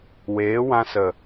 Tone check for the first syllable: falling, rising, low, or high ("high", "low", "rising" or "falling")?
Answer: rising